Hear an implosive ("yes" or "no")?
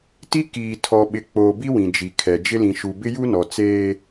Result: yes